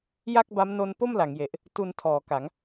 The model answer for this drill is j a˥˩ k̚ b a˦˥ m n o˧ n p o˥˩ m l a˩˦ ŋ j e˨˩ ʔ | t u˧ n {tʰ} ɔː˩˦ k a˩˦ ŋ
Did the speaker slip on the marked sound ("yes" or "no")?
no